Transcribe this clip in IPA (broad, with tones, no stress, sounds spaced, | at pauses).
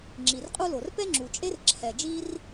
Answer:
ŋ͡ǁ i˩ r qʼ u˥ l o˩ r p ɛ˥ ŋ͡ǁ u˩ t͡ʃʼ e˥ r ǁʰ ɛ˩ d͡ʒ i˥ r